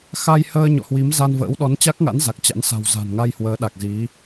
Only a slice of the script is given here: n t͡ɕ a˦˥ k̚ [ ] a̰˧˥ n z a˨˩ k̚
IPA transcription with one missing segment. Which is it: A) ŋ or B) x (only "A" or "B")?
A